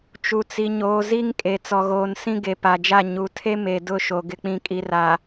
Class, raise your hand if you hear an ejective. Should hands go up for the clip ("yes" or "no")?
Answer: yes